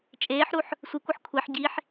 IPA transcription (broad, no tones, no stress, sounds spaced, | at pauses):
t͡ʃʼ eː ħ ɾ u ħ | sʷ i kʷ ɯ ħ kʷʰ e ħ ɟ i ħ